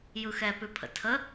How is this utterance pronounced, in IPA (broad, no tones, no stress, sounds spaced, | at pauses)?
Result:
j ɯ x ɛ p ʉ pʰ ə̰ tʰ ə